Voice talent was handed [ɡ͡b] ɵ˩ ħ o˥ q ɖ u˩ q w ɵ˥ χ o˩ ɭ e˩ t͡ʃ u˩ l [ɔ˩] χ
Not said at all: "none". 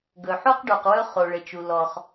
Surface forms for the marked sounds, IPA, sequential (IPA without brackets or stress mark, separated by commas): ɡ, ɔ˩